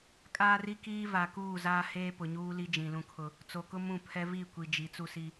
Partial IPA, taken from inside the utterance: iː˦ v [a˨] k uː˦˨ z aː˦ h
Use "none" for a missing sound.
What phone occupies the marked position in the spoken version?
a˨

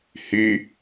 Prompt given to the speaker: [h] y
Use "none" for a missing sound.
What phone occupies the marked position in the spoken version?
h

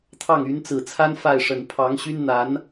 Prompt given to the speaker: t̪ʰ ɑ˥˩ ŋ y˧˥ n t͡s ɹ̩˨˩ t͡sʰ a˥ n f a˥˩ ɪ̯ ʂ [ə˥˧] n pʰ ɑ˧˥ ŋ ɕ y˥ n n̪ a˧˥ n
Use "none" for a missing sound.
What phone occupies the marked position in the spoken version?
ə˨˩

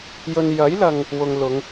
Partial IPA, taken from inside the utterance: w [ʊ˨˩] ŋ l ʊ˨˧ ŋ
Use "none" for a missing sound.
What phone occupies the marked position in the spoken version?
ʊ˨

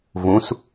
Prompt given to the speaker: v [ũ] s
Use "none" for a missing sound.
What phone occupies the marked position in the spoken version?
ũ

